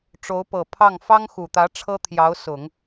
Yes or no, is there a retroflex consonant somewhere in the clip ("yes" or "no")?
yes